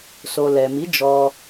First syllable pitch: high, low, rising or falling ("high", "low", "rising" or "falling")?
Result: low